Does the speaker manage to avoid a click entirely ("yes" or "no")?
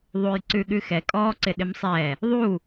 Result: no